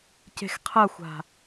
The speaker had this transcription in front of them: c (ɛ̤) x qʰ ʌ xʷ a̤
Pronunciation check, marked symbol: incorrect: e̤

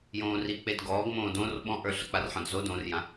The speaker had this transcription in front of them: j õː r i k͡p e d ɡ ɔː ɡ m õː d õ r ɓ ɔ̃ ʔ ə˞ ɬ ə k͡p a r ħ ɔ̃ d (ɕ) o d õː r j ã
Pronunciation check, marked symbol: incorrect: z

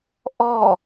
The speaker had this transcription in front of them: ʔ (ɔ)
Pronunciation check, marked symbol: correct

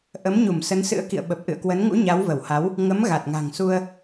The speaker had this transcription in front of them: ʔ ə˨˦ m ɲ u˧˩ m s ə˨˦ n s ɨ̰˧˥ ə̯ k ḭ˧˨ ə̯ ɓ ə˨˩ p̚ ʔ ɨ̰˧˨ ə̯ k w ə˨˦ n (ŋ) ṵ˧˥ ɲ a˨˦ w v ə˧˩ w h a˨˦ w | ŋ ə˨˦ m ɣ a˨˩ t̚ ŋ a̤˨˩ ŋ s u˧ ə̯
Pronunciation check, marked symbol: correct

